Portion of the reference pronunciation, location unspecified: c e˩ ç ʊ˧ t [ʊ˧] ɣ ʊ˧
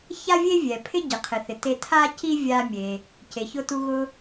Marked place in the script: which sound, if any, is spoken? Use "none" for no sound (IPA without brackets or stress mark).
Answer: u˧